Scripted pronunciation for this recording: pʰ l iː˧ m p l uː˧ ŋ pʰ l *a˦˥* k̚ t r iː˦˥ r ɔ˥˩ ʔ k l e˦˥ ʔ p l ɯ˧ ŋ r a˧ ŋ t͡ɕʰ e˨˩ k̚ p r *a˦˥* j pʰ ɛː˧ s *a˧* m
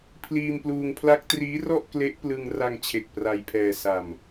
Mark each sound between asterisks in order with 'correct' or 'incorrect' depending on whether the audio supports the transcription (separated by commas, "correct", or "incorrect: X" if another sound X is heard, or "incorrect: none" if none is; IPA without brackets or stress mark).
correct, incorrect: a˧, correct